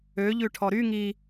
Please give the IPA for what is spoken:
ø ʎ ʉ ʈʰ ɔ ɾ y ŋ i

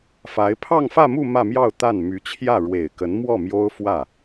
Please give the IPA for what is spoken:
f a˧˥ ɪ̯ pʰ ɑ˥˧ ŋ f ä˥˧ m u˥˧ m ä˥˧ m j ɑ˥˧ ʊ̯ t̪ a˥˩ n m y˧˥ t͡ɕʰ j ä˥˩ ɻ w e˨˩ ɪ̯ k ə˧˥ n m w ɔ˥˩ m j o˥ ʊ̯ f w ä˥˩

